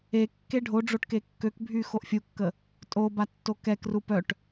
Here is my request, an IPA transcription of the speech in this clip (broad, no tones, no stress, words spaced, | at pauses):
e kːeɖʱoɖ͡ʐoʈ kekːøkbʱy xoʔfʲukːə | tʼoba tːokɛkru pœʈ